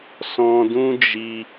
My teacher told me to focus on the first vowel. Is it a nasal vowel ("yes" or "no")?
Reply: yes